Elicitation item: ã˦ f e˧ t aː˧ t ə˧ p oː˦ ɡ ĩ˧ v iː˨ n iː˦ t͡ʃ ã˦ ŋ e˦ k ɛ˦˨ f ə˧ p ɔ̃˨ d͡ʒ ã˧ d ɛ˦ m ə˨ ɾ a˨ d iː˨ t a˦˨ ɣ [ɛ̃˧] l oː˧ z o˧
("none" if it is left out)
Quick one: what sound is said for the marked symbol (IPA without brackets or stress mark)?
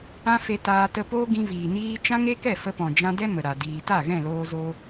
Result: ɛ̃˦˨